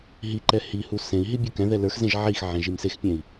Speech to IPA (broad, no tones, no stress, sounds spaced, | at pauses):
ɦ i ǃ ɛ h i h u s ẽ i̯ ɦ i bʲ u k ɛ̃ ð ɛ l ə˞ x z ẽ ʒ ʕ i x ʕ ẽ ʒ i m s e x pʲ ɛ̃ i̯